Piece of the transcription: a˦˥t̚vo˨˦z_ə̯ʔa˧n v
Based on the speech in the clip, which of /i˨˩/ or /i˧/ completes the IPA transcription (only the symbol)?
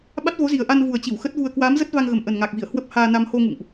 i˨˩